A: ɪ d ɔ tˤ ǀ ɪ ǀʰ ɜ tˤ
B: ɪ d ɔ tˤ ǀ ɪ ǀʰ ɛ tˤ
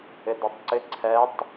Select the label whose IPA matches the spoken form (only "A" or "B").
B